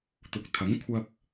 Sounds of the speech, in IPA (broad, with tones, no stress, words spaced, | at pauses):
t̪ʊ˨˥k̚t̪ʰɐ˨˥ŋ kʷʰɐ˧k̚